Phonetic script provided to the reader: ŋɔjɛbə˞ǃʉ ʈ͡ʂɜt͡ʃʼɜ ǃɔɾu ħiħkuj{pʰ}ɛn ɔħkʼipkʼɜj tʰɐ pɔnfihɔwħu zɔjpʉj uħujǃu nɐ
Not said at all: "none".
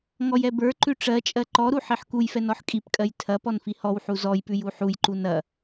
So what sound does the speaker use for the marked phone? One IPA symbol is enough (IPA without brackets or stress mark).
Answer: f